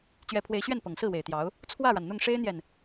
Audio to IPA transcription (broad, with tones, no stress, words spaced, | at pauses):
t͡ɕɥɛ˧˥pʰwe˧˥ɪ̯ɕɥɛ˥˩n pɤ˨˩ŋsɹ̩˥˩we˨˩ɪ̯t̪jɑ˧˥ʊ̯ | t͡sʰwä˥˩ɻa˩nn̪ʊ˥˩ŋ ʂe˥ɪ̯n̪jɛ˨n